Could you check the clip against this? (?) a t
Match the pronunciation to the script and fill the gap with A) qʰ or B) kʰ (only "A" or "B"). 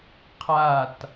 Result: A